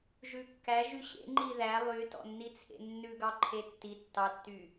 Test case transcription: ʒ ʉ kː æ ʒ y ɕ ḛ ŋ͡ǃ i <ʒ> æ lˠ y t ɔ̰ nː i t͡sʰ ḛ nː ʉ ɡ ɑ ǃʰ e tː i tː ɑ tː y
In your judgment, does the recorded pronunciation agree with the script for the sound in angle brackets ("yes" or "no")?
no